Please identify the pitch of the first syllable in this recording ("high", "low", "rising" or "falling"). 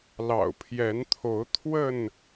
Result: low